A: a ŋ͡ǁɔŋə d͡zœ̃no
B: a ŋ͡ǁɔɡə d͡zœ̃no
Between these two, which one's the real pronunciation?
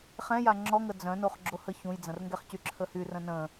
A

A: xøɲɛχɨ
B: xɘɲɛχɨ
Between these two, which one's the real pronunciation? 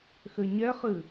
B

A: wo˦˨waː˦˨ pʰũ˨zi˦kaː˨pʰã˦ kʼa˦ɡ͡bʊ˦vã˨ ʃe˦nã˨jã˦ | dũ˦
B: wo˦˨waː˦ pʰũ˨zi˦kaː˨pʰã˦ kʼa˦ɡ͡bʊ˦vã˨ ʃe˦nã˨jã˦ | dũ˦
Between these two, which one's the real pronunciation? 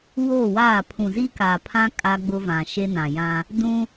A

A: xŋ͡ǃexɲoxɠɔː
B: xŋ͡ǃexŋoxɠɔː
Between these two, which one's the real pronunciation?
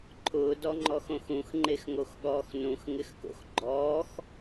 B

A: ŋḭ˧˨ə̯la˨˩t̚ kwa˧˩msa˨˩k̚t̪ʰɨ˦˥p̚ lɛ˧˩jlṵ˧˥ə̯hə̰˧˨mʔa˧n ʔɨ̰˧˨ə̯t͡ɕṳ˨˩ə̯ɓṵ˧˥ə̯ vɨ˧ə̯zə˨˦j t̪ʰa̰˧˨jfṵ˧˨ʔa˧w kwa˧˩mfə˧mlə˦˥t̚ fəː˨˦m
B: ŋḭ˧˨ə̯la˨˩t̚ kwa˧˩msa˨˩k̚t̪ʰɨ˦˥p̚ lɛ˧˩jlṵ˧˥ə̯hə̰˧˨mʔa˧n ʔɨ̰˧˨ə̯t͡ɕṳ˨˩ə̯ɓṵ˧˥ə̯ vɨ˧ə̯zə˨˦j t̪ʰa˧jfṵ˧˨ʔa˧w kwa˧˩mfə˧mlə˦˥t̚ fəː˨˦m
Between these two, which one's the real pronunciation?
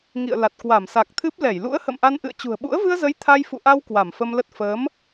B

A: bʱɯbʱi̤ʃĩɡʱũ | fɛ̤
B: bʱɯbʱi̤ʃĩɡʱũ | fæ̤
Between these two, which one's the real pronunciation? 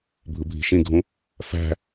B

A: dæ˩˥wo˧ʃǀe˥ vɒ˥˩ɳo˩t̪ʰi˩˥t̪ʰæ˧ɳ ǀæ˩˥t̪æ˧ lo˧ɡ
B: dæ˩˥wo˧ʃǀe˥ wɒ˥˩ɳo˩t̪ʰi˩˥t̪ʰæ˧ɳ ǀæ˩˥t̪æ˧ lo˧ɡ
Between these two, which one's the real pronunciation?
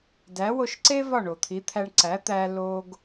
A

